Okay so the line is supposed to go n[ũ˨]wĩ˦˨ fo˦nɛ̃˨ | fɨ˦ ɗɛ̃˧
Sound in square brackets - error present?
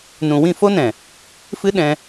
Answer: no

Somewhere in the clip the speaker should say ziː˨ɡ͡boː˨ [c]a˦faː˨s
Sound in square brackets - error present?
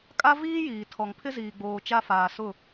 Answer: yes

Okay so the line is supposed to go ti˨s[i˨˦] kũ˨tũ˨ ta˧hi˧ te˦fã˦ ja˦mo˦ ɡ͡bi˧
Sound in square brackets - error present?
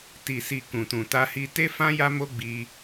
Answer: yes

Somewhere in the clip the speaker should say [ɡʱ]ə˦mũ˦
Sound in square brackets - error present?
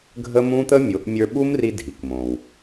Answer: no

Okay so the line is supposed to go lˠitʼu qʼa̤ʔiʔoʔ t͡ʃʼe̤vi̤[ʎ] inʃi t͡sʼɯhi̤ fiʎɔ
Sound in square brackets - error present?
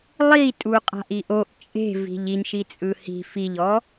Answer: no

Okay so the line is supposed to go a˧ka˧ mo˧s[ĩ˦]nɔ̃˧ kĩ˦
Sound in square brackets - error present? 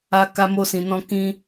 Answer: yes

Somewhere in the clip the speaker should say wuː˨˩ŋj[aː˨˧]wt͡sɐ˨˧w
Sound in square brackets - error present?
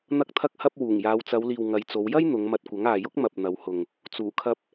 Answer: no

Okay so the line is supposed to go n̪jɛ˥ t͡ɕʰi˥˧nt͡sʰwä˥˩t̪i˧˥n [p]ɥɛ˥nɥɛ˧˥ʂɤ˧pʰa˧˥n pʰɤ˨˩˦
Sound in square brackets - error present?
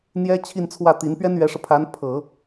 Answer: no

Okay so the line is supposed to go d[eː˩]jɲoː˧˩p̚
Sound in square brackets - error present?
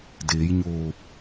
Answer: yes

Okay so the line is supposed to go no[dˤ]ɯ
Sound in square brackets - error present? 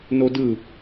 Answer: yes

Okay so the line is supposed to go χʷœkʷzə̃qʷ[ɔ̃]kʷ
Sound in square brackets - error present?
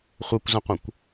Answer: yes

